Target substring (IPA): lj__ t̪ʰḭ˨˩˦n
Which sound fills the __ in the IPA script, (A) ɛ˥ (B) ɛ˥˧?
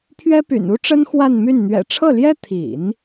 A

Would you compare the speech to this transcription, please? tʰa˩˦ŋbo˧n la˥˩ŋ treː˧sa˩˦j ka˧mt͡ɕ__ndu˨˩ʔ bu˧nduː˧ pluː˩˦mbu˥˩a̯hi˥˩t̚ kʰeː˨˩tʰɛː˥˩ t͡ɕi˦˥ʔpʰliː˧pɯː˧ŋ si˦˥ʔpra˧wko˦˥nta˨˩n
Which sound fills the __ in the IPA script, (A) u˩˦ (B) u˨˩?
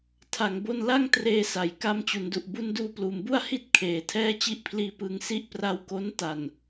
A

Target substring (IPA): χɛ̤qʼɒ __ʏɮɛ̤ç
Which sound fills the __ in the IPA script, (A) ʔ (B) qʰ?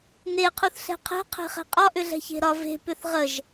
A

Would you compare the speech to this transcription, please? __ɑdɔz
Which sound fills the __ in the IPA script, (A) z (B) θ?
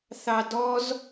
B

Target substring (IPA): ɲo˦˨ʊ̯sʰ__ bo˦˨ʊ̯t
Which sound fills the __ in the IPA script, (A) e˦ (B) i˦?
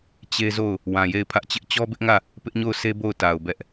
A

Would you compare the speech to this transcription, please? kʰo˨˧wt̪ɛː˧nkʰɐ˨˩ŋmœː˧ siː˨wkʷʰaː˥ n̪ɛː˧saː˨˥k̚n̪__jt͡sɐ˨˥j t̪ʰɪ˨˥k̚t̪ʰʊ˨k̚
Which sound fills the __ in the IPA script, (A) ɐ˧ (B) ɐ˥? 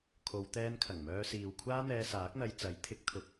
A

